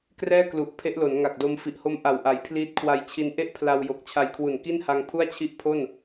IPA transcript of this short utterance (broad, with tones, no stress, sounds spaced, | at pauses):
k r ɛː˥˩ k l u˨˩ ʔ pʰ e˦˥ ʔ l o˩˦ n ŋ a˨˩ k̚ d o˧ m f i˨˩ ʔ h o˦˥ m ʔ a˨˩ w ʔ a˩˦ j pʰ l iː˦˥ t̚ kʰ w a˧ j t͡ɕʰ i˧ n ʔ e˥˩ ʔ pʰ l a˧ w j o˨˩ k̚ t͡ɕʰ a˧ j kʰ w u˨˩ n k i˥˩ n h a˧ ŋ pʰ u˥˩ a̯ t͡ɕʰ i˥˩ ʔ pʰ o˥˩ n